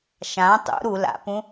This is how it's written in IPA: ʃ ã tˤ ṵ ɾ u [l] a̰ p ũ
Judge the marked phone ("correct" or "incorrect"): correct